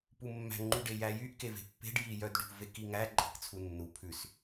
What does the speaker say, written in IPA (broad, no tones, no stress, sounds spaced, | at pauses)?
p u mː æ̤ ŋ͡ǃ y ɖ e j æ j y ʔ k e v e̤ pː e̤ ɖ j i j œ d ɖ ṳ v e k i ŋ æ ǃʼ e̤ k t͡sʰ u nː u pʰ ʉ s